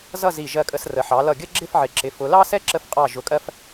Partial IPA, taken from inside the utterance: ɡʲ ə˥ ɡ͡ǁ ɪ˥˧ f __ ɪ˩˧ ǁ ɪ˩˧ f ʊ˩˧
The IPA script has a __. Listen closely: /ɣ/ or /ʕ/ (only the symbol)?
ʕ